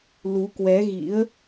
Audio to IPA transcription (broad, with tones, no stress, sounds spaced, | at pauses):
l u˨˦ k w ɛ˨˦ ɣ ḭ˧˥ ə̯